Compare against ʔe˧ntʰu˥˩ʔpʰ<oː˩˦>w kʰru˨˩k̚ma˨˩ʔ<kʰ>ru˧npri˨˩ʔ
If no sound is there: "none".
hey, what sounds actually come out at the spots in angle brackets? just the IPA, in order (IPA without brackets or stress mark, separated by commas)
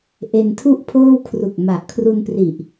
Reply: oː˥˩, kʰ